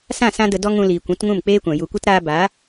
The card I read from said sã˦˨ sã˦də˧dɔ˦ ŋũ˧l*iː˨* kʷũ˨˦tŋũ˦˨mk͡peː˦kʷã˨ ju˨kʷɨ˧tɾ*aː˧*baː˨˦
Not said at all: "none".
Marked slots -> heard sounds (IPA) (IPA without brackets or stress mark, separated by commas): iː˨, aː˧